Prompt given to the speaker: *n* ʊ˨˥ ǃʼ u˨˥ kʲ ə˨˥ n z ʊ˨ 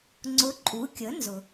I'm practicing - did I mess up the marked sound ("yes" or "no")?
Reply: yes